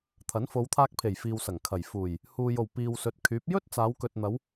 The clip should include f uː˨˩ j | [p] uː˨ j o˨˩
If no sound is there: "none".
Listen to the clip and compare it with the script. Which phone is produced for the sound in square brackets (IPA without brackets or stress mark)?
h